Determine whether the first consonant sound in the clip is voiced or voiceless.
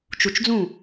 voiceless